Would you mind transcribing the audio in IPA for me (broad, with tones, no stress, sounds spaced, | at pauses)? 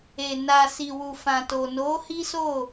e˨ n a˨ s i˨ w u˨ f ã˨ t o˨ n o˨˦ h i˦ s o˦˨